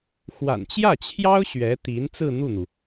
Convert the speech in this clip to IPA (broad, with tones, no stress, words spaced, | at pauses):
xwa̰˨˩nt͡ɕjä˥˩t͡ɕʰjɑ˥ʊ̯ ɕɥɛ˧˥t̪i˧˥n t͡sɹ̩˥˧n̪u˥˩n̪u˩